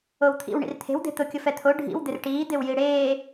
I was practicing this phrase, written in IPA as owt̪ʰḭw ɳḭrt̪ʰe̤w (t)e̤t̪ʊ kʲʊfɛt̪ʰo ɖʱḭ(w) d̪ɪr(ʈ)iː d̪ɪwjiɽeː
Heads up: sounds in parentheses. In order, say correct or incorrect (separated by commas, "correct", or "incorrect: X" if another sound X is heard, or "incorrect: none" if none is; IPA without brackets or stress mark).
incorrect: d̪, correct, correct